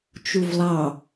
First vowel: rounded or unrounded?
rounded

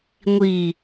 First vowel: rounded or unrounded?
unrounded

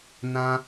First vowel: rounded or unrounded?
unrounded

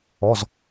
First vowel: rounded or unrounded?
rounded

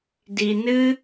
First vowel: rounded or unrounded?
unrounded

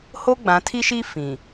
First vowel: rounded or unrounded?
rounded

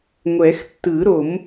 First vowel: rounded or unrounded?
unrounded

